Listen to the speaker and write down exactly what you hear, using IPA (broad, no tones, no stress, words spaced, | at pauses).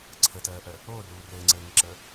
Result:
ǀʰətɜːʔɜ | oːruː rɘːŋ͡ǀɘːŋəǁə